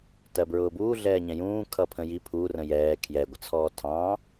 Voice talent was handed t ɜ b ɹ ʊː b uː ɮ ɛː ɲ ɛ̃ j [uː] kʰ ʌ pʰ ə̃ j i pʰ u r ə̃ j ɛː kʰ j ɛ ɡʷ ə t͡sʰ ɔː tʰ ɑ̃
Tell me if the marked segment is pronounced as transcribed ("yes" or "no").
no